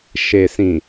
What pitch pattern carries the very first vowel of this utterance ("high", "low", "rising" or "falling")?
low